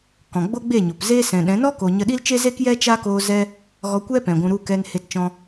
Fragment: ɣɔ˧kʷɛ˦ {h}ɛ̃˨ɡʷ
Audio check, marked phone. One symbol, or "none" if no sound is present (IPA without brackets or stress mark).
p